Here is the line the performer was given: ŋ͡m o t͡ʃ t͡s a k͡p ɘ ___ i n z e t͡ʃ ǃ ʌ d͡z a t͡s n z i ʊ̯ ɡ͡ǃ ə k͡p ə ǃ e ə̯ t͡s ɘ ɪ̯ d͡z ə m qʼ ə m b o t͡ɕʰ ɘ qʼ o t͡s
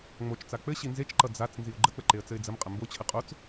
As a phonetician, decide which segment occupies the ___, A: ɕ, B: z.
A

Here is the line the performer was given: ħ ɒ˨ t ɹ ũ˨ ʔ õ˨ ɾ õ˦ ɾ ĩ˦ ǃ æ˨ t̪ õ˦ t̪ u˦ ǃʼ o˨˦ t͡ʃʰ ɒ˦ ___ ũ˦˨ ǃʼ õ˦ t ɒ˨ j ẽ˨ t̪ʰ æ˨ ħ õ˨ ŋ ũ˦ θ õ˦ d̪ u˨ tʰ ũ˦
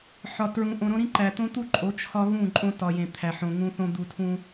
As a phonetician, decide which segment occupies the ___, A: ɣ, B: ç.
A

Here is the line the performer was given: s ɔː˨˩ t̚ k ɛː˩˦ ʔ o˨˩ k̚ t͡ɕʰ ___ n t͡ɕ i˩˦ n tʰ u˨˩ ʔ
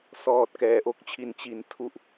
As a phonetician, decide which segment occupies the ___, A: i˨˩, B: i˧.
A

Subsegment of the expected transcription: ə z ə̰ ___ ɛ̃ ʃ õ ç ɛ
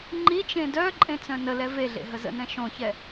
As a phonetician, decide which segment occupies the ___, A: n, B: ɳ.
A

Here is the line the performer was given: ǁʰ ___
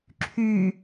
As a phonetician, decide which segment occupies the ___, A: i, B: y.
B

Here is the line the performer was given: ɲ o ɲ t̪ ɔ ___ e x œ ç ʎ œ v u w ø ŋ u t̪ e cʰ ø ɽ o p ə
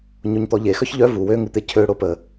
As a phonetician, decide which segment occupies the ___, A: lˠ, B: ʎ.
B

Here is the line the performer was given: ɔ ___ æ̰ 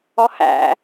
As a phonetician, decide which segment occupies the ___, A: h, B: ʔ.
A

